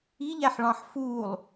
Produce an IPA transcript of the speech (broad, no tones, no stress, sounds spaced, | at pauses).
i ʎ æ ħ ɭ ɑ̃ ħ f uː lˠ